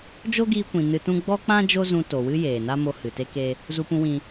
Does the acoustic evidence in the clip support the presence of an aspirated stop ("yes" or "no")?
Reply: no